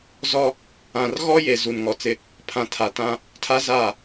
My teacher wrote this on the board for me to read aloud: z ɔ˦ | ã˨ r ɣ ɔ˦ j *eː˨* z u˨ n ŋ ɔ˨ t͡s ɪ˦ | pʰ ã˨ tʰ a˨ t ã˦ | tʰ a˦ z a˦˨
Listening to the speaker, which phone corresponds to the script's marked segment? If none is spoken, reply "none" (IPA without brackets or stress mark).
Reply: e˨